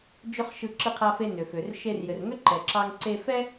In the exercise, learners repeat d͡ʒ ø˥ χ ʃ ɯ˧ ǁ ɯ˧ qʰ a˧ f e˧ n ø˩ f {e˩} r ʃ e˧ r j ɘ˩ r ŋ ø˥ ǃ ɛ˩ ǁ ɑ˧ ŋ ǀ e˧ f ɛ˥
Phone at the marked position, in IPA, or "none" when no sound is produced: ø˩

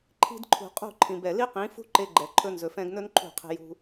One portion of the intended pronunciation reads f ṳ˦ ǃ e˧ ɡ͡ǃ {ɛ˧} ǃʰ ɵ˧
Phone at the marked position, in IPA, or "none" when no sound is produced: ɛ˨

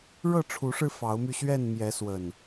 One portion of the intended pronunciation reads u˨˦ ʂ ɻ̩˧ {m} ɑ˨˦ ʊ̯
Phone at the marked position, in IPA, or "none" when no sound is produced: f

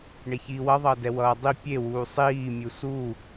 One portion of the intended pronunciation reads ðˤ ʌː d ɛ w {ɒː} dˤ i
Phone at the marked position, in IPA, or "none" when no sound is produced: ʌː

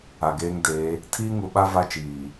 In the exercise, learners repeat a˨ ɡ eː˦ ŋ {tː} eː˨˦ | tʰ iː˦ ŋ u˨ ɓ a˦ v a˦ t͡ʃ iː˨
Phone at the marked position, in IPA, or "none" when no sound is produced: d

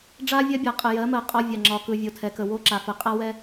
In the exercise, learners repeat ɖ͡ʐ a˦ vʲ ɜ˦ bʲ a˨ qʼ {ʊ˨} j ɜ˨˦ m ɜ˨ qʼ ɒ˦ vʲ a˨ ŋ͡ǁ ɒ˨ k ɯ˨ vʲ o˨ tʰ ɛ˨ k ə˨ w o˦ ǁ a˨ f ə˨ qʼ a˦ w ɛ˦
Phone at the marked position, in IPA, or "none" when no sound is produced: ə˨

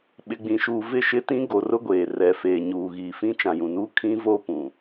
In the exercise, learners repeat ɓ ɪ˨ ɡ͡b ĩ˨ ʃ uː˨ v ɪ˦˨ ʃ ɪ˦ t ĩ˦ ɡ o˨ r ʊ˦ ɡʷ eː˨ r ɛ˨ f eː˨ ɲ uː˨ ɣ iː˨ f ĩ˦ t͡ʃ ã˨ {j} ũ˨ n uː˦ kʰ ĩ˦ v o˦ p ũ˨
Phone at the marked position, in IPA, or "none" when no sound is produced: j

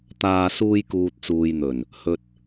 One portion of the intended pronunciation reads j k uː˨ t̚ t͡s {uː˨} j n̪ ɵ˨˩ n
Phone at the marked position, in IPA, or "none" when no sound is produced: uː˨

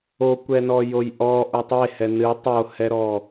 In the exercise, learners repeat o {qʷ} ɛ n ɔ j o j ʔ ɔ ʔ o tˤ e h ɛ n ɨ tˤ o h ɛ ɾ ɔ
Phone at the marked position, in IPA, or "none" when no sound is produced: kʷ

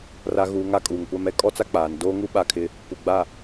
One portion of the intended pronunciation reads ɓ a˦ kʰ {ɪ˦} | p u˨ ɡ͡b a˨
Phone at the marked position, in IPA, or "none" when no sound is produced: ɪ˦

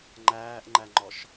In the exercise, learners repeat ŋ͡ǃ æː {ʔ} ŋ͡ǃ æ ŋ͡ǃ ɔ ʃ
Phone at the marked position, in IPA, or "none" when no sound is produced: ʔ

